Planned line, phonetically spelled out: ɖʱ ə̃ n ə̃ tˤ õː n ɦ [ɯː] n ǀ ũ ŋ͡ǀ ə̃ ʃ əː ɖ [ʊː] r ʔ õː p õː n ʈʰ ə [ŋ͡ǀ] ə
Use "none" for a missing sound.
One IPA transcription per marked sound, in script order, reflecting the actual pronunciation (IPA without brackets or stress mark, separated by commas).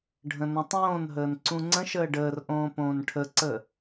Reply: əː, əː, ǀ